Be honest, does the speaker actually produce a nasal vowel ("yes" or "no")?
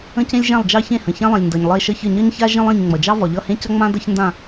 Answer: yes